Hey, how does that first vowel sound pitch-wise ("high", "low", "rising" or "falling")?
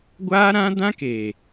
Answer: high